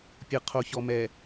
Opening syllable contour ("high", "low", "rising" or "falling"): low